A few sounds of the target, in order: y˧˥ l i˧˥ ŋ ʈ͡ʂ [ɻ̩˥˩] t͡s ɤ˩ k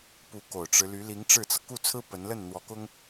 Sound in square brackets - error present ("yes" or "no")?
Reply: no